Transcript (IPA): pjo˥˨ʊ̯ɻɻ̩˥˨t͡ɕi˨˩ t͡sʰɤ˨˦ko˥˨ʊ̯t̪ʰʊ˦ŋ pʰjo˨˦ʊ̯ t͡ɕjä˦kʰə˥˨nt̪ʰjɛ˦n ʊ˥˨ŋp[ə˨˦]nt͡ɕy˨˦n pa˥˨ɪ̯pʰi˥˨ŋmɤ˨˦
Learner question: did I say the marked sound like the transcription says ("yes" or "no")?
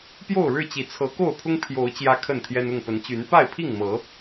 yes